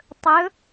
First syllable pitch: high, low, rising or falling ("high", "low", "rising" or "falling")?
rising